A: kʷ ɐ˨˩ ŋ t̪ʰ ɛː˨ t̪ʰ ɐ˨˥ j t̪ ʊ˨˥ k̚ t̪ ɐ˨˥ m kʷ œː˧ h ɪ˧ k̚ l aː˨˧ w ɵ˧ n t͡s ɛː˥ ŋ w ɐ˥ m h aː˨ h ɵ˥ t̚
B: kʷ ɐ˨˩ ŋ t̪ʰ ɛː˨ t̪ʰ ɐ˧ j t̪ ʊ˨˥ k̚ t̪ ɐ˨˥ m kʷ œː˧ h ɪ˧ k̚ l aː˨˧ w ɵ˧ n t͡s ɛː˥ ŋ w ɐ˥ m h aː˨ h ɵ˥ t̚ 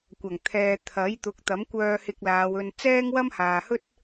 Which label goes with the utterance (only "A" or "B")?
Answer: A